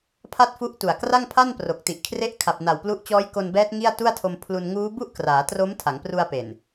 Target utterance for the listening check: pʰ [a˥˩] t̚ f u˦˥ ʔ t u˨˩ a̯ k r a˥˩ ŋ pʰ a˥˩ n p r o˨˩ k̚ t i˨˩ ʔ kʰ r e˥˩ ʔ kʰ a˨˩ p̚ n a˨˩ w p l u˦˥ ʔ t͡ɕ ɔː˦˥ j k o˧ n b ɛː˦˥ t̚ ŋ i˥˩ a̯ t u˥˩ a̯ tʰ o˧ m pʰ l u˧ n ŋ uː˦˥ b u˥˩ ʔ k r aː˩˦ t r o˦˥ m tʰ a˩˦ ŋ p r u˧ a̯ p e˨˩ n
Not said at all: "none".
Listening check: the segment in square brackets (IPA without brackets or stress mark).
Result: a˥˩